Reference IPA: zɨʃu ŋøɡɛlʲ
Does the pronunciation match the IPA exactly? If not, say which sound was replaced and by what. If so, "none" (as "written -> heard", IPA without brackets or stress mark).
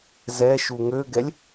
ɨ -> ɛ